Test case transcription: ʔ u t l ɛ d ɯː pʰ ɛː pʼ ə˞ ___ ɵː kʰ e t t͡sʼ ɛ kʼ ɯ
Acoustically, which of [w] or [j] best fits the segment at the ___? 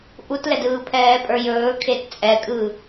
j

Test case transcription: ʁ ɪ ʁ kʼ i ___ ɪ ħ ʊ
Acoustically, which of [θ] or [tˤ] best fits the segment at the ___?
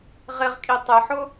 tˤ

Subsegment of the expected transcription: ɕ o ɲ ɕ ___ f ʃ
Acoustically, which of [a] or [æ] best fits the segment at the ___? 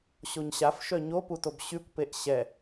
a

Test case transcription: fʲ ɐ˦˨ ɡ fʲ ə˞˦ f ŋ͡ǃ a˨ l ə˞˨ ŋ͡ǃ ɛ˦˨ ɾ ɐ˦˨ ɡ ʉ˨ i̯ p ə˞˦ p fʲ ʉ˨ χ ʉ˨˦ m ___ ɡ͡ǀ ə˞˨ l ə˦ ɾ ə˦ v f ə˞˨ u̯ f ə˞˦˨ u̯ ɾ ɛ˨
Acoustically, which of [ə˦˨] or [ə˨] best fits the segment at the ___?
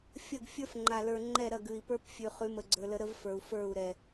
ə˨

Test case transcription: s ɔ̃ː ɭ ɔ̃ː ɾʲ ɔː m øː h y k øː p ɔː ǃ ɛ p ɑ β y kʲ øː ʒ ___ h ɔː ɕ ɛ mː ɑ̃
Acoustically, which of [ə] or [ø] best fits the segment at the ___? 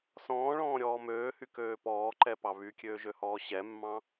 ø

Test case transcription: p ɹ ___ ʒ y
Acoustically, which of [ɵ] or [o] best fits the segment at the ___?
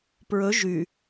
ɵ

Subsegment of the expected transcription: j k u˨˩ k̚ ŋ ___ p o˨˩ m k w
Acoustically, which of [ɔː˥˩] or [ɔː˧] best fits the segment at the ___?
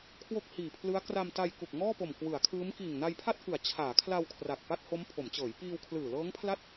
ɔː˥˩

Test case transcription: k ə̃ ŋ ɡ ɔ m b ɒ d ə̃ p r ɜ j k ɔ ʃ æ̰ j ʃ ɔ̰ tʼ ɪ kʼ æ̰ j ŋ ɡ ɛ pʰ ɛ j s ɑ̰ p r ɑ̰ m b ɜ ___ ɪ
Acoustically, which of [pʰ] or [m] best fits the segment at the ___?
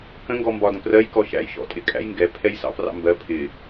pʰ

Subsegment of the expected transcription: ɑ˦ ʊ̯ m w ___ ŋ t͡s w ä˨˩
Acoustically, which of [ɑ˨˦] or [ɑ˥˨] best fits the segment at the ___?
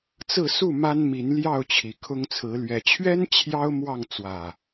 ɑ˥˨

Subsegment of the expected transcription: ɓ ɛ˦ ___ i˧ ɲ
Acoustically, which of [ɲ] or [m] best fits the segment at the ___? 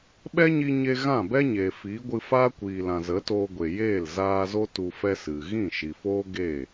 ɲ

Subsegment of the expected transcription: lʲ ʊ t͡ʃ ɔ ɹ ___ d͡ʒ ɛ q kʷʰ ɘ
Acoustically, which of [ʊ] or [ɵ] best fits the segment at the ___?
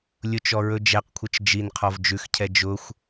ɵ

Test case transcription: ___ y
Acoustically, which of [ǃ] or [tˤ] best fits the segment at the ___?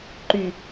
ǃ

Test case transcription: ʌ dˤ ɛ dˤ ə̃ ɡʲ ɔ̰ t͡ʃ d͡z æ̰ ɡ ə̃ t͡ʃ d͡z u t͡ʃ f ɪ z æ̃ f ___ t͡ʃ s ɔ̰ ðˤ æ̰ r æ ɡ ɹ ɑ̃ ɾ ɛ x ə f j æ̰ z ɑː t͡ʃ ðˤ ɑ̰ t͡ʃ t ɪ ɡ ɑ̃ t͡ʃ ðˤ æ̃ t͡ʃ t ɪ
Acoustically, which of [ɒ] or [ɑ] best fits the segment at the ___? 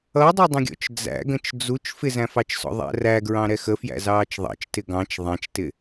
ɑ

